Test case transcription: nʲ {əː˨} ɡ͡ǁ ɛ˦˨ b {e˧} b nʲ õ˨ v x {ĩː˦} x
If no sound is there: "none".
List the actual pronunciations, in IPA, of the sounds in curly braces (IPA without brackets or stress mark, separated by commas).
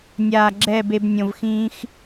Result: aː˨, e˧, ĩː˧